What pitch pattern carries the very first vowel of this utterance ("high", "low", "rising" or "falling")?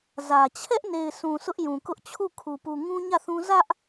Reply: low